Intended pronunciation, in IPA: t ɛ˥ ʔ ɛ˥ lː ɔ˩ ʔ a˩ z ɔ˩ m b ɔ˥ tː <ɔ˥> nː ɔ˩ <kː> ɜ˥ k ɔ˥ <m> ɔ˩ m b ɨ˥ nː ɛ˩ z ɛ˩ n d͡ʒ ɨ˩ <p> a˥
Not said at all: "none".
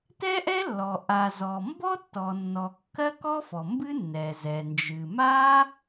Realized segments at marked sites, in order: ɔ˩, kː, f, m

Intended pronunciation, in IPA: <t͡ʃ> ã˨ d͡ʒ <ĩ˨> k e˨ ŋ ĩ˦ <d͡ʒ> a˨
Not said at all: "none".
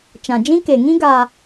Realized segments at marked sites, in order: t͡ʃ, ĩ˦, ɡ

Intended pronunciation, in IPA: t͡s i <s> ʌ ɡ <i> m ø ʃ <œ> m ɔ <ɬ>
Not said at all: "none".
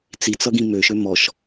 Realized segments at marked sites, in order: t͡s, ĩ, ø, ʃ

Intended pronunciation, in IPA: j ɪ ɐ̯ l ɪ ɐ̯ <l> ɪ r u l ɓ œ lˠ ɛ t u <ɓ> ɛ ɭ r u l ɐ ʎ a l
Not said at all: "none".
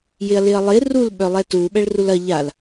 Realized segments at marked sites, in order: lˠ, ɓ

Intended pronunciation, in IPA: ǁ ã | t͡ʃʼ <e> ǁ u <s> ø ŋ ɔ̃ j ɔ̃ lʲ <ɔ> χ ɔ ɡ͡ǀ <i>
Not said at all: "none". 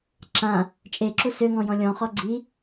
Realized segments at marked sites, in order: e, s, ɔ̃, i

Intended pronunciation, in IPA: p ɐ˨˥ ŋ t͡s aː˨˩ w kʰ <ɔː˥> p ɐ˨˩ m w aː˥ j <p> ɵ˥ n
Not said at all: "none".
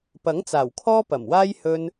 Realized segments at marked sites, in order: ɔː˥, h

